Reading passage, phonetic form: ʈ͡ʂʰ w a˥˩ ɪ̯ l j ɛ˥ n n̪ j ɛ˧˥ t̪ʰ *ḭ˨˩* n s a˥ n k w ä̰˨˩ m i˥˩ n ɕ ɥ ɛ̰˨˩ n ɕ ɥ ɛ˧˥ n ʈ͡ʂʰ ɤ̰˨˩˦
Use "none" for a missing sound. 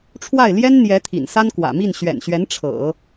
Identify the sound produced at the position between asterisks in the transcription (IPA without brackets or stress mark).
ḭ˨˩